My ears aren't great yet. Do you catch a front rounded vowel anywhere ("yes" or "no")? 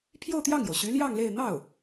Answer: yes